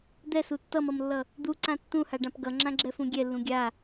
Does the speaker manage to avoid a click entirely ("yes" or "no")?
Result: no